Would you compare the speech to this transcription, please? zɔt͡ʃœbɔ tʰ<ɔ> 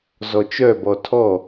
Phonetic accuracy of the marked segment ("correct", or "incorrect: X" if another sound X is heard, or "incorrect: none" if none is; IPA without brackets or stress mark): correct